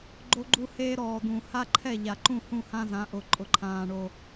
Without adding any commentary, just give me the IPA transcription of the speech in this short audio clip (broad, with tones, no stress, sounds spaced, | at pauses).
ɡ͡ǃ o˦ ɡ͡ǃ u˦ h eː˦ ɾ ɔː˨ d̪ ũ˨ h a˦ ǃʰ ɛ˦˨ ʎ a˨ ǃ ũ˦˨ h ũ˦˨ h ã˦ z ã˨˦ ʔ ʊ˨ ǃʼ ʊ˨ ǃʰ ãː˨ ɳ o˨